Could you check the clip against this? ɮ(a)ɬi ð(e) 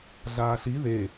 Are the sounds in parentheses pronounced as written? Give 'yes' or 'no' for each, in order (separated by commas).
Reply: no, yes